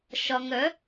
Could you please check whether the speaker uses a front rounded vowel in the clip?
yes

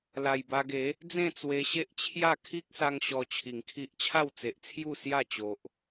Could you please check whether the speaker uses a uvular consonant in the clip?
no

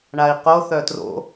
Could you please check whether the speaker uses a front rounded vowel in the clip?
yes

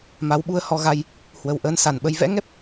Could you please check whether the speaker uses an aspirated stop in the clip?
no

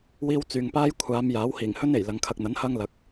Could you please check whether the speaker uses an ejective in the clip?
no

